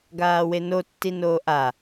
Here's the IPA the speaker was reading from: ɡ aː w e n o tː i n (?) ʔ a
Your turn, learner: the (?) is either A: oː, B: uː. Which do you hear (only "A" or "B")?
A